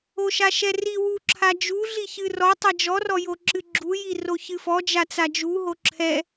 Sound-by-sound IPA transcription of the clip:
o ʃ a ʃ ɛ r i w u ǁʰ a d͡ʒ u ɮ i ç ɨ r ɔ tˤ ɛ d͡ʒ ɔ r ɔ j o ǁ ɨ ɡ͡ǁ u j i r o ç ɨ f ɔ d͡ʒ a t͡s a d͡ʒ u ɦ o ǁʰ ɛ

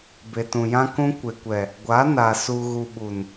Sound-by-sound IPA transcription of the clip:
b e˨ t ũ˨ j ã˦ k ũ˦ kʷ e˨ kʷ ɛ˨ | ɡʷ a˨˦ n a˨ s u˨ ɣ u˨ ɓ u˨ n

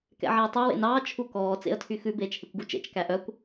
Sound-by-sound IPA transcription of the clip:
k ɛ̰ ʕ æ ə̯ tˤ e w ḛ n ɑː t͡ʃʰ u k ɔː t͡s ḛ ə̯ tʰ y x ʉ b eː t͡ʃ h e kʷ ɡ u t͡ʃ ḛ t͡ʃ k æ ʔ œ kʷ

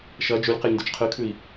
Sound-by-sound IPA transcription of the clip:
ʃ ɐ d͡ʒ ʉ lʲ q e lʲ n d ʉ t͡ʃ qʰ ɨ kʰ ʉ i̯

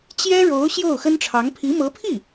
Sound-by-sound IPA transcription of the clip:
t͡ɕ j ɛ˥ ɻ o˧˥ ʊ̯ ɕ j o˥˩ ʊ̯ x ə˥ n ʈ͡ʂʰ ɑ˧˥ ŋ pʰ i˧˥ m ɤ˧˥ pʰ i˥˩

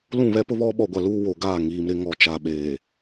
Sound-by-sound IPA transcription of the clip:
l ũ˦˨ β ɛ˦ p ʊ˦ β ɔ˦ ɓ ɔ˨ ɡʷ a˨ l uː˦ w o˨ ɡ aː˦˨ ŋ iː˨ m ɾ ɪ˦ ŋ ɔ˨ t͡ʃ a˨ ɓ eː˨

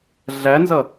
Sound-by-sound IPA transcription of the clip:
ɮ æ n z ʌ

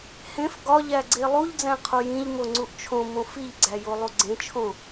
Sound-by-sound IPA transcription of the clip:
h ẽ f ɡ ɒ ʎ æ ɡ͡ǀ e lˠ u ʎ d͡z æ̃ qʰ o j ĩ ʎ m o ŋ͡ǀ u ʔ t͡ʃʰ õ m õ f i ʎ ɡ͡ǀ æ j o lˠ u ɡ͡ǀ ẽ t͡ʃʰ õ

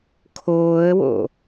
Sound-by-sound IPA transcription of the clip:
kʰ oː ə̯ w o̰

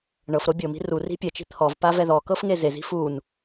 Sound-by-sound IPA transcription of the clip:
ɳ ɤ f ɾ o bʲ ɤ m i̤ r u r i̤ pʲ ɛ t͡ʃ i̤ t̪ʰ ɔ v p a v ɛ ð ɔ k ɤ f ŋ e z e z i̤ f u n

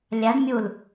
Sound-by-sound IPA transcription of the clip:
lʲ a ɖ mʲ u l

